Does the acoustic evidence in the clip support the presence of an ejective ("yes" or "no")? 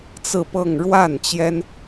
no